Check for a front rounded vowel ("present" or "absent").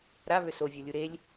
present